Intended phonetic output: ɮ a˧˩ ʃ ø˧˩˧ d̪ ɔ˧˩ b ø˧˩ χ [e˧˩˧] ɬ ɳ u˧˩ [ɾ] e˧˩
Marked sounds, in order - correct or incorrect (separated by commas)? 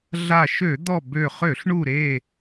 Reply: incorrect, correct